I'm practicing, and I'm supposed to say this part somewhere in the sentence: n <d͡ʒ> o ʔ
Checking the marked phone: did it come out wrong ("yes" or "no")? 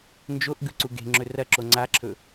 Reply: no